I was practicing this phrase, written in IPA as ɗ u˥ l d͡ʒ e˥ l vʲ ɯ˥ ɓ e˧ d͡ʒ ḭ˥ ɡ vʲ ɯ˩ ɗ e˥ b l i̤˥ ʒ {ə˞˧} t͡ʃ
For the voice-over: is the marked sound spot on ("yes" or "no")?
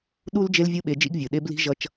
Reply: no